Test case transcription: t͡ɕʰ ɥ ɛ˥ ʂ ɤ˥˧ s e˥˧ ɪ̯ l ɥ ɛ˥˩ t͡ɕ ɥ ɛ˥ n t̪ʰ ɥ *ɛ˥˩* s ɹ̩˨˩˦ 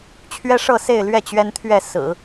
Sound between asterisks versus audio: correct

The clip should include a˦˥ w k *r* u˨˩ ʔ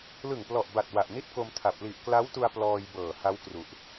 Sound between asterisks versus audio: correct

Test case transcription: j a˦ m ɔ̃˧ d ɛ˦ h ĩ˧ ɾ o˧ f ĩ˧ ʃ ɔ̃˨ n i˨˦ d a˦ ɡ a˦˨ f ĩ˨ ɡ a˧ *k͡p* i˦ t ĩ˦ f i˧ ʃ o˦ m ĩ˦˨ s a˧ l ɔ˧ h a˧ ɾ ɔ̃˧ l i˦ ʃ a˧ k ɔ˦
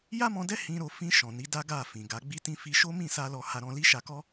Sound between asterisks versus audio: incorrect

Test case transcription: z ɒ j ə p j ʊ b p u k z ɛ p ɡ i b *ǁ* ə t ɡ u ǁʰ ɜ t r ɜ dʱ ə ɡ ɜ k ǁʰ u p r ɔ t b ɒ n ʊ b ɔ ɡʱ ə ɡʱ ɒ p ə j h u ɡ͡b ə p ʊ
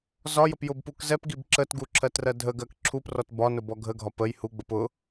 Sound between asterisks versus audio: correct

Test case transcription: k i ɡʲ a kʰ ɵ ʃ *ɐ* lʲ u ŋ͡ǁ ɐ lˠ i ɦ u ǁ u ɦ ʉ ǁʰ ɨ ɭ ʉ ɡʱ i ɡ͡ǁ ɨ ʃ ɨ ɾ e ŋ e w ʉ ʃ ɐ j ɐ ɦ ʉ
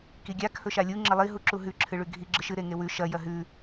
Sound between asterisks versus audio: incorrect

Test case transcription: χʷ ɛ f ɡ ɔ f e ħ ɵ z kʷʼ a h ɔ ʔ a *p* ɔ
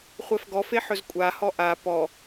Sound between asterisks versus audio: correct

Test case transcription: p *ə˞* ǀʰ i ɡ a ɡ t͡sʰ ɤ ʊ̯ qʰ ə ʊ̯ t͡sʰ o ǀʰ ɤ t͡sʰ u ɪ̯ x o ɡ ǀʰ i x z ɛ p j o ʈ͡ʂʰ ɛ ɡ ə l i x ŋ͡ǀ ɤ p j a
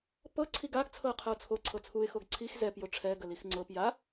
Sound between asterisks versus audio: incorrect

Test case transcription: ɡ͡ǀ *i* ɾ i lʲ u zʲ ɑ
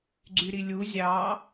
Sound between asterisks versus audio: incorrect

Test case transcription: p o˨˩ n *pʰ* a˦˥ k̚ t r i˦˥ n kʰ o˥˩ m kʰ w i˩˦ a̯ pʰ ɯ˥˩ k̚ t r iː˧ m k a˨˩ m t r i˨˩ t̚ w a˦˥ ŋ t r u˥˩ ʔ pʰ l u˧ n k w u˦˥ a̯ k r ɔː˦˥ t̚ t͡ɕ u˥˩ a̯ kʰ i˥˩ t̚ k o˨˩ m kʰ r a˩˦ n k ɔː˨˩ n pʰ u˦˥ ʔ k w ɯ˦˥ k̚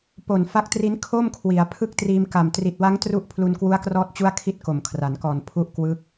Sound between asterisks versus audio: incorrect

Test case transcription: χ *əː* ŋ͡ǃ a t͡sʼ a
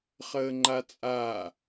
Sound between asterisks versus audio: correct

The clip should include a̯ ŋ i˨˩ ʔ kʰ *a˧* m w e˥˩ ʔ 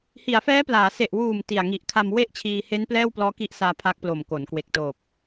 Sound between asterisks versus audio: correct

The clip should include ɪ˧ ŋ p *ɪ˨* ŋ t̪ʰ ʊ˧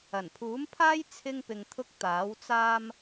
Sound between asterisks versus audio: correct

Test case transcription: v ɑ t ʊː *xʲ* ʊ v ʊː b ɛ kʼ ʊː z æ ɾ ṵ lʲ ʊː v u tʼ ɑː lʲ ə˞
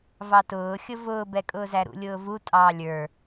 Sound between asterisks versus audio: correct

